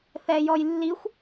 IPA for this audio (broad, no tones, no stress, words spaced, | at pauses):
θɛjɔjlːixʷ